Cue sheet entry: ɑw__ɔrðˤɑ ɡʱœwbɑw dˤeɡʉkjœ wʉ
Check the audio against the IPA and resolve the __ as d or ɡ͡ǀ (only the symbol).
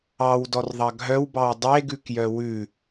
d